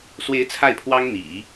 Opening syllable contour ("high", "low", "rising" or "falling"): rising